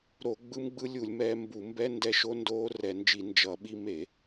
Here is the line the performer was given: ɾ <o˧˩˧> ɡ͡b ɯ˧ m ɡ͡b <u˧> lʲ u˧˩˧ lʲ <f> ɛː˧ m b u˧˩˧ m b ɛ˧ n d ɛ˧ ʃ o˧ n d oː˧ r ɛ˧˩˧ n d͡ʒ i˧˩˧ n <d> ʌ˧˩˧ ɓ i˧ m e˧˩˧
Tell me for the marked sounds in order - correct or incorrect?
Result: correct, incorrect: ɯ˧, incorrect: m, incorrect: d͡ʒ

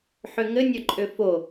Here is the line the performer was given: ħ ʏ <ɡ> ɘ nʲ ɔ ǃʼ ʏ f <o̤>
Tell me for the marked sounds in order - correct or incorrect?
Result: incorrect: ŋ, incorrect: o

